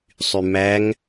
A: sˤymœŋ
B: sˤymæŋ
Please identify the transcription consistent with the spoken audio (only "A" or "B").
B